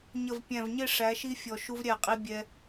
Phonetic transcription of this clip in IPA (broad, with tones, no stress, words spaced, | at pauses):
ɲə˨v pʲæ̃˨vɲɪ˦˨ ʂæ˨˦ʃi˦fʲɔ˨ ʃu˦vɾʲæ˦˨qʼi˦ bʲɛ˦